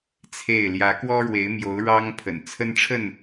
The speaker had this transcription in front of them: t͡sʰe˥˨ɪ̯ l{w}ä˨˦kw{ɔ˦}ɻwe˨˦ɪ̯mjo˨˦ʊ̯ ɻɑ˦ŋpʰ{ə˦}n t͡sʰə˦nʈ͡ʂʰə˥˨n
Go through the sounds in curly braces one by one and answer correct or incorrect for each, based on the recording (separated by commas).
incorrect, correct, incorrect